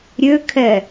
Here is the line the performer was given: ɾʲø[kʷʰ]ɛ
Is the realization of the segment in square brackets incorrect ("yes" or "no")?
yes